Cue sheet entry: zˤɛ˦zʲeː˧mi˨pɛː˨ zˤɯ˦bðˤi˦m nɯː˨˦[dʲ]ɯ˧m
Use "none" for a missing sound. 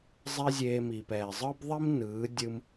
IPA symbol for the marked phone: dʲ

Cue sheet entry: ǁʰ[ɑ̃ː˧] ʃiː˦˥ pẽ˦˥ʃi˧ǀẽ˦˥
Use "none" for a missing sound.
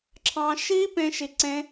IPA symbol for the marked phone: ɑ̃ː˧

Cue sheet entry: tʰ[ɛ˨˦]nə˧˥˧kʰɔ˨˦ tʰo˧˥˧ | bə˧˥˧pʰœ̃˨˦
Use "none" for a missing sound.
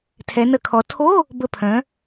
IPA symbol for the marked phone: ɛ˨˦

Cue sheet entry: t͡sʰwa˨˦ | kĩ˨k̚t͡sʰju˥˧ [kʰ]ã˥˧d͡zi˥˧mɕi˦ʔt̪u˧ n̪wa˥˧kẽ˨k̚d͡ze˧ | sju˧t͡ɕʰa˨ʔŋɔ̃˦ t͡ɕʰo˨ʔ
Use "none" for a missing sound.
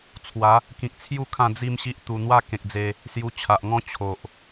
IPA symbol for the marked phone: kʰ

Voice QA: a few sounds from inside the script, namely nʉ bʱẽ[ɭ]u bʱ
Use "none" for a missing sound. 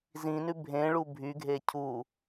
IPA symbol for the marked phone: ɭ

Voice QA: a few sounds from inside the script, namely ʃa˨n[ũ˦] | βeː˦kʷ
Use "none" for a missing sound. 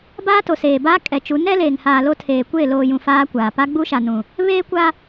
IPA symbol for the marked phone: ũ˨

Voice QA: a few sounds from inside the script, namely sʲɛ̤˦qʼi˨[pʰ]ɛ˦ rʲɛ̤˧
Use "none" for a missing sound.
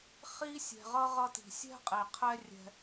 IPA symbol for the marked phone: qʰ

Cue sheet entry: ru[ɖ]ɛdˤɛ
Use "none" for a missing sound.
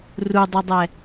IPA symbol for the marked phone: dˤ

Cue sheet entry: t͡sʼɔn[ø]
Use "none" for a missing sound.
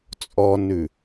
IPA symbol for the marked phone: ʉ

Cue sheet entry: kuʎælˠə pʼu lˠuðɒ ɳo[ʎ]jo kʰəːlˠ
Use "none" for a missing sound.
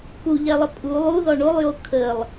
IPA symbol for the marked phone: lˠ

